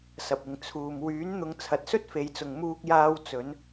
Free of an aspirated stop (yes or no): no